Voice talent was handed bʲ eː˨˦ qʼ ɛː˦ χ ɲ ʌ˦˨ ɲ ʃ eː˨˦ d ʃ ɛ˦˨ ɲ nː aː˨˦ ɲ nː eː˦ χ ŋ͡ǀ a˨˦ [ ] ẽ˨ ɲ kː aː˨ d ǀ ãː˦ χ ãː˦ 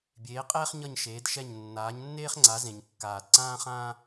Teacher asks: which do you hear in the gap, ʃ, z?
z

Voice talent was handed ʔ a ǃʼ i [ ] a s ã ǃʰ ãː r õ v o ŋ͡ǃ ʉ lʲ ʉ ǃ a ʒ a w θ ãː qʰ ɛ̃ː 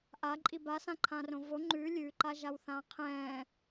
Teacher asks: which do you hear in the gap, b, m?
b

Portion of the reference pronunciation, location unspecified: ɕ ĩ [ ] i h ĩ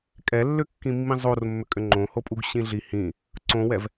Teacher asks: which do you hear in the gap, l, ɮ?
ɮ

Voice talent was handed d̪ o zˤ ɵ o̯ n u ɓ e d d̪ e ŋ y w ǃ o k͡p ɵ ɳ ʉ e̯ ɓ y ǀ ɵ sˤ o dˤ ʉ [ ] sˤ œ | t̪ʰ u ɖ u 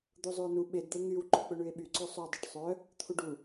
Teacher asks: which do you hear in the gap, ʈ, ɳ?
ʈ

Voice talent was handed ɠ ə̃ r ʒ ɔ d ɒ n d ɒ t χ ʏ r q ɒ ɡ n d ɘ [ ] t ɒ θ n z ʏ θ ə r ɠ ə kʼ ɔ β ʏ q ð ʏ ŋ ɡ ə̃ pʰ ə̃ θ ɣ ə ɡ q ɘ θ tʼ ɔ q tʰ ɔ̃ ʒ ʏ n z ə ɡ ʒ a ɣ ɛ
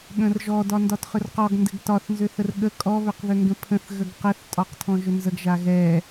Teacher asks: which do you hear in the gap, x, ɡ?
ɡ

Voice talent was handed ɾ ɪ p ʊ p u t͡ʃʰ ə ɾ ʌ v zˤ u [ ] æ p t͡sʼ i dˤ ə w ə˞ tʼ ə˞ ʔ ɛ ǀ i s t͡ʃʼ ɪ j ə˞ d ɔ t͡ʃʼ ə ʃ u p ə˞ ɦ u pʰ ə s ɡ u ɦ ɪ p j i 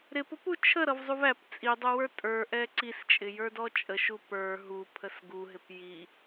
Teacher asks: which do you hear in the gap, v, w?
v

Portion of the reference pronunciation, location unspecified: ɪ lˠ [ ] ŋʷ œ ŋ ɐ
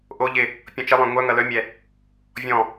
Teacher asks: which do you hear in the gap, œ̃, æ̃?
œ̃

